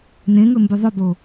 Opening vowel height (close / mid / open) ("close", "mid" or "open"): mid